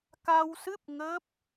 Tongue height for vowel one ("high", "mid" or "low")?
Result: low